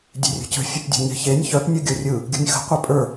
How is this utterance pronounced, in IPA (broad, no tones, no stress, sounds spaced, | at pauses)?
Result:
dʲ e̤ rʲ ə̤ c ə̤ fʲ ə p dʲ ə̤ ɲ e̤ ç e nʲ ç œ p nʲ ɯ ɡʲ o rʲ ɯ | ɡʲ o̤ nʲ x ə̤ qʷ œ pʼ ə˞